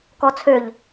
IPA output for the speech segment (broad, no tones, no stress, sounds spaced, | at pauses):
k ɔ t͡sʰ ø ʎ